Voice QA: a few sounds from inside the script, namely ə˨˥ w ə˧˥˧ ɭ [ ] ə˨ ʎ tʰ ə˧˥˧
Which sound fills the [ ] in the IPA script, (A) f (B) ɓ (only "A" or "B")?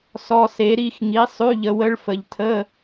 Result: A